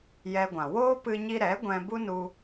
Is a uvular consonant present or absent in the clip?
absent